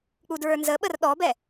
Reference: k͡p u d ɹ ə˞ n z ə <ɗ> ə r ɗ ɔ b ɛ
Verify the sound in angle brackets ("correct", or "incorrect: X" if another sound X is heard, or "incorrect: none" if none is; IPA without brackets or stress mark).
incorrect: ɓ